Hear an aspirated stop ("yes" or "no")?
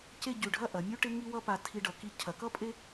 yes